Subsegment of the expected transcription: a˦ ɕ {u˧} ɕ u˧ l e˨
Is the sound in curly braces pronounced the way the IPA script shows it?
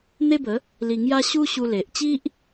no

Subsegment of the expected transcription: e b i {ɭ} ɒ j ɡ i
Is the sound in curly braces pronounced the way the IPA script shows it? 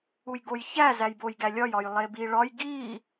yes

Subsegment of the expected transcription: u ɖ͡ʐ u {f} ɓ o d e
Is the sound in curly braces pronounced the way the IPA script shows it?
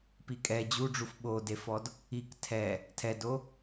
yes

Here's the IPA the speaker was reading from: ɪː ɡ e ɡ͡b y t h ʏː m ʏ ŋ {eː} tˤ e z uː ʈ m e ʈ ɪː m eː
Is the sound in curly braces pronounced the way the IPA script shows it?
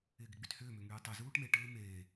no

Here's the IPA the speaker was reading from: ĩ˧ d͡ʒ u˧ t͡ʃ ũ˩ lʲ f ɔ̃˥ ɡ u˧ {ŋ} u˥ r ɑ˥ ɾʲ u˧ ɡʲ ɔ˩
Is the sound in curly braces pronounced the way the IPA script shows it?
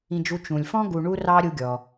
no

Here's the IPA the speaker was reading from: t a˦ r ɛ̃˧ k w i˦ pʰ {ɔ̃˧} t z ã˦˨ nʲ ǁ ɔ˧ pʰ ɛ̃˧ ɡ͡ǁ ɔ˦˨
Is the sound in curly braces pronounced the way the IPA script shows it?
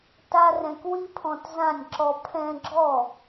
yes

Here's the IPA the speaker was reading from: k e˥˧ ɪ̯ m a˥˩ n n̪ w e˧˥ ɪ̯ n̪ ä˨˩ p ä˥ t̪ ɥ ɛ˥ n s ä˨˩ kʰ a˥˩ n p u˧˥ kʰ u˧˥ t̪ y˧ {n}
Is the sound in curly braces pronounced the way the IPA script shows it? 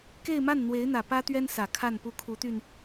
yes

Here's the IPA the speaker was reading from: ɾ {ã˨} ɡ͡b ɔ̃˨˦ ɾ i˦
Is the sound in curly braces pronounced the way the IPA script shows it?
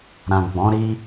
yes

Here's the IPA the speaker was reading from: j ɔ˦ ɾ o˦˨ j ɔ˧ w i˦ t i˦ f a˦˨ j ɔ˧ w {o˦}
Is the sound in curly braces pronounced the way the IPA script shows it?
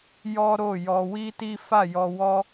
no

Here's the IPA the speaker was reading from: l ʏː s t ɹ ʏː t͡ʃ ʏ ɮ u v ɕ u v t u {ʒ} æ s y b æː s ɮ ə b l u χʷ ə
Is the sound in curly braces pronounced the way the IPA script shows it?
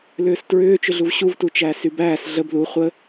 no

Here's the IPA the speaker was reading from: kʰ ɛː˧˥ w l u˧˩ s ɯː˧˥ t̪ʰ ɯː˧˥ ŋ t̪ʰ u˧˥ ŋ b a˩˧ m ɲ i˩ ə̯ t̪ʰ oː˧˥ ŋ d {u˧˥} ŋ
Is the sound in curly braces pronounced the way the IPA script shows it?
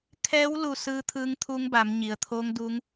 yes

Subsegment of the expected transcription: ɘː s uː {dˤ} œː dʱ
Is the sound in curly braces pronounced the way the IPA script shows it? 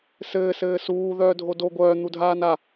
no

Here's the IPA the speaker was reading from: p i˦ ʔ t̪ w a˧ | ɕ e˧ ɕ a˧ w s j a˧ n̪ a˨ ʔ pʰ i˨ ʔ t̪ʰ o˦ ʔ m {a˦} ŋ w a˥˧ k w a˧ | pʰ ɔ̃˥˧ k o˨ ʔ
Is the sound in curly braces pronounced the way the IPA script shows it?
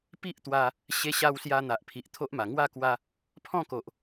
no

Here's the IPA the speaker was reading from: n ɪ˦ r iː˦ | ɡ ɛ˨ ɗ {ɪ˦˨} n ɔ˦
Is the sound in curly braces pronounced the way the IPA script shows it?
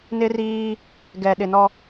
no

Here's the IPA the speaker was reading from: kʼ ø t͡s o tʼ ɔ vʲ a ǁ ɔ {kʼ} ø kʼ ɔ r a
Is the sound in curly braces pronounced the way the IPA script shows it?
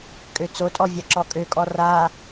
yes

